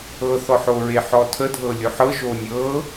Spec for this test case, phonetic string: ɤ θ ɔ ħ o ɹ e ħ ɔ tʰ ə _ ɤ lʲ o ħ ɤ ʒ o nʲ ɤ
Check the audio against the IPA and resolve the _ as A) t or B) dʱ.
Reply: B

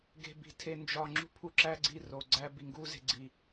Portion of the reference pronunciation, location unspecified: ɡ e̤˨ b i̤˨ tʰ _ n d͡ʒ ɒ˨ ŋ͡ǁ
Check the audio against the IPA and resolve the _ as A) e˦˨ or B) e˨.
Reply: B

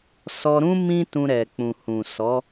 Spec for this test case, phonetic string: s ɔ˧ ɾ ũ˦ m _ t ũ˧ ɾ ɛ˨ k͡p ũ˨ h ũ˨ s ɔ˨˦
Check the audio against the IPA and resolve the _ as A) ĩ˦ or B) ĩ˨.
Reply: A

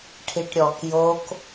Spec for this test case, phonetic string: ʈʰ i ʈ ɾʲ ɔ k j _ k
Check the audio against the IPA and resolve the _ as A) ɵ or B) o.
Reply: B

